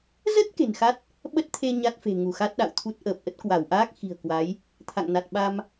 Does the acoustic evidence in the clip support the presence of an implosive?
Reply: yes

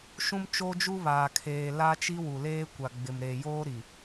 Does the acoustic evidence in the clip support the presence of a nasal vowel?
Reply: yes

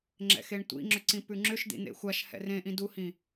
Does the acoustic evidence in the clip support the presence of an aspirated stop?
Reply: no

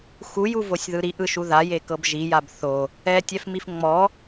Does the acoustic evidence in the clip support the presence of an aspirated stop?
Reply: no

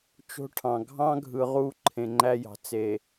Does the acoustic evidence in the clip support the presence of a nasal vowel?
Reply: yes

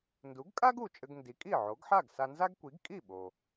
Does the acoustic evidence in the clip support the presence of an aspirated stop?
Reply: no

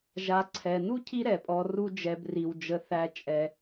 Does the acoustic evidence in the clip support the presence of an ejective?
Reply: yes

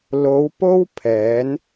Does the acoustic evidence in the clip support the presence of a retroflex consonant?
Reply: no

